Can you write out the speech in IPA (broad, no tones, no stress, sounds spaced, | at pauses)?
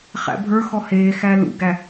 χ æ̰ bʱ ə˞ x ɔ h eː x æ l ṵ ɡ æ